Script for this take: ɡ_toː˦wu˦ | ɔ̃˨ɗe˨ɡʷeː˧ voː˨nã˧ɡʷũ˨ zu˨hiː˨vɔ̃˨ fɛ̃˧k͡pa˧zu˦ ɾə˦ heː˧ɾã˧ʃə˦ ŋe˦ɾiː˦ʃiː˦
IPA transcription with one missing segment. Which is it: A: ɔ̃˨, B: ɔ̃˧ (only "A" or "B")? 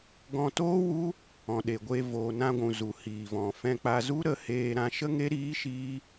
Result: B